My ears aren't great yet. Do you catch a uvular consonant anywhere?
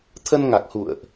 no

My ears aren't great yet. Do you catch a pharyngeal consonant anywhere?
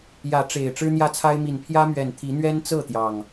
no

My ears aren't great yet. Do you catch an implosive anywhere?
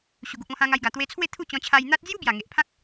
no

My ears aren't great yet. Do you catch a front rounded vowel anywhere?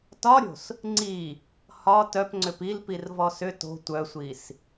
yes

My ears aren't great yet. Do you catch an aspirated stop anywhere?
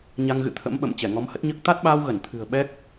yes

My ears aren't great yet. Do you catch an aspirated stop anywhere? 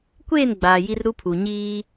yes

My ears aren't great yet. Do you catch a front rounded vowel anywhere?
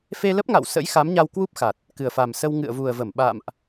no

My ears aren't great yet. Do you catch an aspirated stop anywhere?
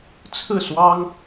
yes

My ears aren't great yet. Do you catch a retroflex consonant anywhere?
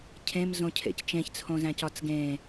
no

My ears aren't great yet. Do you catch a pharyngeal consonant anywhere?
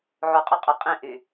yes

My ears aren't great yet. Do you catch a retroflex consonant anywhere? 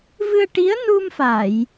yes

